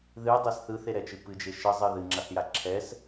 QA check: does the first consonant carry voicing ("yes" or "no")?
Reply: yes